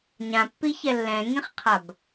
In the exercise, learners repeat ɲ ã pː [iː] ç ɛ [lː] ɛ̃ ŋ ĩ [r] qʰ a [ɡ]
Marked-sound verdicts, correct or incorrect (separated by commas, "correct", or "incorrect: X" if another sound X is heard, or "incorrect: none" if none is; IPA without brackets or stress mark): incorrect: i, correct, incorrect: χ, incorrect: b